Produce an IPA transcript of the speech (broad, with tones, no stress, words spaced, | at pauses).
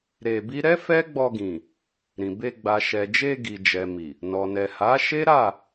ɾe˧bi˦ ɾɛ˦fɛ˦ɡ͡bɔ˧ɡĩ˨ | ɾĩ˨ be˧ ɡ͡ba˨ʃɛ˨d͡ʒe˧ ɡi˨ d͡ʒɛ˨mi˨ | nɔ˨nɛ˨ha˨˦ʃe˦ ɾa˦˨